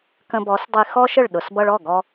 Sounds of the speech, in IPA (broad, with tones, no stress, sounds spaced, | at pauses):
k ə̃˧ b ɔ˨˦ s dˤ i˧ x ɔ˦ ʃ ə˦˨ ɭ ɗ ʊ˨ s b ʌ˧ ɭ ɔ˦˨ ɡ ɔ˧